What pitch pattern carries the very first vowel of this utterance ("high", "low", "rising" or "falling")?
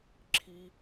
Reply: high